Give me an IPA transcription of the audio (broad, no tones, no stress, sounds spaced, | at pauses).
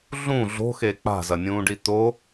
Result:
ɮ ũ ɮ o̤ x e k͡p a̤ z ɐ nʲ ũː ɖ i t̪ o